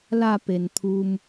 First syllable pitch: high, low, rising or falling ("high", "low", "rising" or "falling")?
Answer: falling